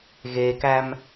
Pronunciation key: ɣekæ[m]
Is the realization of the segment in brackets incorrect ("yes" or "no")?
no